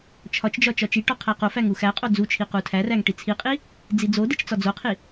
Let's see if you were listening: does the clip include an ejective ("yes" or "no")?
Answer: yes